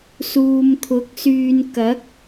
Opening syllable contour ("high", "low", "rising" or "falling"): low